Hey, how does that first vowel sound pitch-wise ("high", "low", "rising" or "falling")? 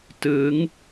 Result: rising